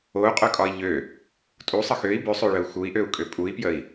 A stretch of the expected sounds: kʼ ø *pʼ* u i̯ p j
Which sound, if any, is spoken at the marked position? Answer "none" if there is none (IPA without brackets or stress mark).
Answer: pʼ